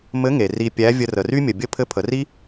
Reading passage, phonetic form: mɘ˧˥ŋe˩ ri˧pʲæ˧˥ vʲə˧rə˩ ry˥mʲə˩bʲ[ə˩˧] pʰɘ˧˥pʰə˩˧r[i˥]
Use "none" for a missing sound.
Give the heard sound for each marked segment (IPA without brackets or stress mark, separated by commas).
ə˥, i˥